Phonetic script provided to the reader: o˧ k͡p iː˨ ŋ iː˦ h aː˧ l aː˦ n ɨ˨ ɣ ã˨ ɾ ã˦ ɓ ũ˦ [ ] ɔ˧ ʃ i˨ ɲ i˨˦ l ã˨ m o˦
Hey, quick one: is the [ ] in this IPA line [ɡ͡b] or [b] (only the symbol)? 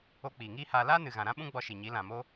ɡ͡b